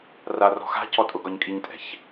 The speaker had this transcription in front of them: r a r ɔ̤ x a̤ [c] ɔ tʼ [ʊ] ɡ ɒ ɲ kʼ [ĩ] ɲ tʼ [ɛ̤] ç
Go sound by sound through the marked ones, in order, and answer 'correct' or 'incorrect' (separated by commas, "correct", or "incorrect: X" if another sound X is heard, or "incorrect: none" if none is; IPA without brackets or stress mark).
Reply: correct, correct, incorrect: i, correct